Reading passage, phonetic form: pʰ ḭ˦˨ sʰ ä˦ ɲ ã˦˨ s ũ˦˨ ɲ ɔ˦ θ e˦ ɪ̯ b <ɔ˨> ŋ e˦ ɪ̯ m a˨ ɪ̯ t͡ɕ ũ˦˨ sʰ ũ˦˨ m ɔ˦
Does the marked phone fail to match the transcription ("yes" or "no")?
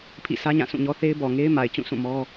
no